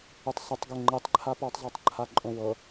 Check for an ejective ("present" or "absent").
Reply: present